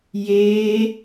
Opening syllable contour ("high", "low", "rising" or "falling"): high